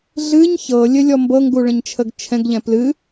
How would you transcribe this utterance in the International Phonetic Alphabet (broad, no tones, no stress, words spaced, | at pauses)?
ɮɨɲ çɤ lʲɘlʲɔmbɤŋɡu ɭə̃ɲt͡ʃʰəɡt͡ʃʰɛ̃ɡʎɛ̃ plɨ